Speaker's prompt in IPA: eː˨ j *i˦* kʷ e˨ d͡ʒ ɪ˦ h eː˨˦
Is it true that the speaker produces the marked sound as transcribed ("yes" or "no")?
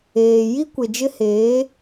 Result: yes